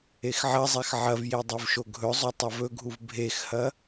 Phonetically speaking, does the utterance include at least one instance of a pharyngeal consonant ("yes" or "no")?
yes